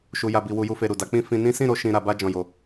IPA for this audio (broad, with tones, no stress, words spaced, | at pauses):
ʃu˨ja˨bi˨ wu˧ju˦fe˧ɾu˨ da˨˦k͡pĩ˦ fĩ˧ nĩ˦ sĩ˦˨ɾo˧ ʃĩ˧ ɾa˧ba˦ d͡ʒɔ̃˧ jo˧